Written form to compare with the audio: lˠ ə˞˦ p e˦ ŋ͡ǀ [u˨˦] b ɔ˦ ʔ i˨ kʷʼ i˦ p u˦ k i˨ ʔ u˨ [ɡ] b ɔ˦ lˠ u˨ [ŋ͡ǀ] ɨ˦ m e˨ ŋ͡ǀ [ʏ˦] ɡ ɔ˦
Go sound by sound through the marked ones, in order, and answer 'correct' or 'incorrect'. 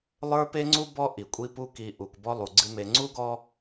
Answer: incorrect: u˦, incorrect: k, incorrect: ɡ͡ǀ, incorrect: u˦

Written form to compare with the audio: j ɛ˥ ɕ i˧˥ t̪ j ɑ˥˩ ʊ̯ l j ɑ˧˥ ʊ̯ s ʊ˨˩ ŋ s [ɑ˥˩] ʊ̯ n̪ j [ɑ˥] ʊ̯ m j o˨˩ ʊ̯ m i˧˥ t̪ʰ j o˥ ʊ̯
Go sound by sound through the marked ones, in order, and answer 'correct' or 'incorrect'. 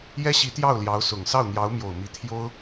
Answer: correct, incorrect: ɑ˧˥

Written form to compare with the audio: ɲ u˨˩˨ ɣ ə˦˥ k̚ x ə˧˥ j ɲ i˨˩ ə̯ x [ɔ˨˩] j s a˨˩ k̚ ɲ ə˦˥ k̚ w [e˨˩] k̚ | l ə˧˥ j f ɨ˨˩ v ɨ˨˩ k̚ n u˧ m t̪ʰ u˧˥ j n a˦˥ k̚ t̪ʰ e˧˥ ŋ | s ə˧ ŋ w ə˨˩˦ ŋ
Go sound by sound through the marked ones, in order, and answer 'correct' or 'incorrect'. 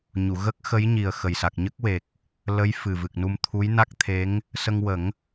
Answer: incorrect: ə˨˩, correct

